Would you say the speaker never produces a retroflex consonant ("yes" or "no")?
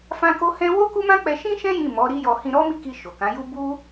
yes